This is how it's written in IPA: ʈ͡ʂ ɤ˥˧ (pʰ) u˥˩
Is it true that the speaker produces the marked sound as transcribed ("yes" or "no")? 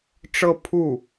yes